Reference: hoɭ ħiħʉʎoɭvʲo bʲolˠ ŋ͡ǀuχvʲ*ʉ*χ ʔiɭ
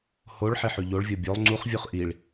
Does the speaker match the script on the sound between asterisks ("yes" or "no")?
no